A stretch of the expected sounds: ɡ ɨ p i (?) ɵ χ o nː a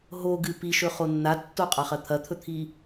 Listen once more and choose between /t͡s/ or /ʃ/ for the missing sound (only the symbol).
ʃ